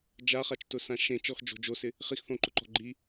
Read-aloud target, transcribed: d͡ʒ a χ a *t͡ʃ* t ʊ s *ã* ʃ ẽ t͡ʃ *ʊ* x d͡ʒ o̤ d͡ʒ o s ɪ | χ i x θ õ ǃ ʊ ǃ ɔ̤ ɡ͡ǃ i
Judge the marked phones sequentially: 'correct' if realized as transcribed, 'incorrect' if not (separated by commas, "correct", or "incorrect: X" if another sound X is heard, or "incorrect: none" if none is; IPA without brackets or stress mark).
correct, correct, incorrect: ɔ